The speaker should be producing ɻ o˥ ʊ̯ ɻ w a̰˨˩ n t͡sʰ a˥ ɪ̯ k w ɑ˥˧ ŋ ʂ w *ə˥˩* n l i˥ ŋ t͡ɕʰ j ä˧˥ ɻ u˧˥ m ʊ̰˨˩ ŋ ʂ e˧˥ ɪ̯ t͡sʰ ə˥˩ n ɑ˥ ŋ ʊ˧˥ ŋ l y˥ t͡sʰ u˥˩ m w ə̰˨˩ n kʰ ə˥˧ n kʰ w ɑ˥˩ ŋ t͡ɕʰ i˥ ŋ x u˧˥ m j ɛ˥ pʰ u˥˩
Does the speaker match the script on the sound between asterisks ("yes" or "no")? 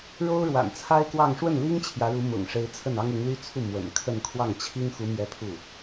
yes